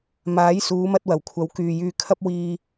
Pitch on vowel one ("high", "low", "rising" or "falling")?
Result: rising